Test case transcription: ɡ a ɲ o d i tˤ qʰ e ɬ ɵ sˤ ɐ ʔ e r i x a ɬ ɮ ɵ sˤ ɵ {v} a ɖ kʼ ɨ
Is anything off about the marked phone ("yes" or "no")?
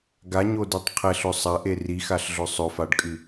yes